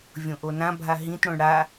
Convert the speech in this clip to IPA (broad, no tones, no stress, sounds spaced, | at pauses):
vʲ õ ʔ o n ã bʱ a ɦ ĩ t ɽ õ ɳ ɽ a